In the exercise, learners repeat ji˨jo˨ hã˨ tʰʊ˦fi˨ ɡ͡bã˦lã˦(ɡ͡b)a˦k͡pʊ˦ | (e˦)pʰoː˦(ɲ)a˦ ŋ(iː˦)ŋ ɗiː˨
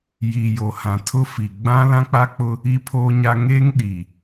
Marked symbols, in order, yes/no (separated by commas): no, no, yes, no